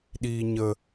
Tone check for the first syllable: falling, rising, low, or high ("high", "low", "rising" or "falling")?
low